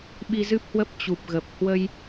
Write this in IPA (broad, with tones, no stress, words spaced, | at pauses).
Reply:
ɓi˧zɨ˦˥p̚hwə˦˥p̚ t͡ɕu˨˩p̚ɣə˨˩p̚ hwə˧j